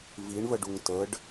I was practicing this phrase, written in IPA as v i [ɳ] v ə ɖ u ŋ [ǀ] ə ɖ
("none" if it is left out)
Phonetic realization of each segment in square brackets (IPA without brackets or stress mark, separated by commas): ɳ, t